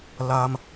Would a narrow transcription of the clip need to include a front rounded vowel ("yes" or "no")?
no